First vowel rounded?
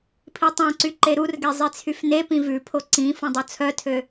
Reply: no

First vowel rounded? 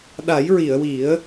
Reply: no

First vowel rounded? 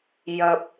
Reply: no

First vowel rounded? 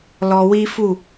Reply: yes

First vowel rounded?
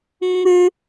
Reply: yes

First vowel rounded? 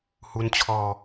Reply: yes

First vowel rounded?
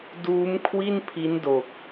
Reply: yes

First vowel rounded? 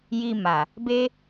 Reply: no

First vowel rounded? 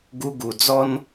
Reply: yes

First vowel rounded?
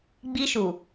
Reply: no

